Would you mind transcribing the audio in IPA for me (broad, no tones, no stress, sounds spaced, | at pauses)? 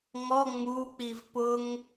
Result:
ŋ ɔ ŋ͡m u k͡p i v p ʊ ŋ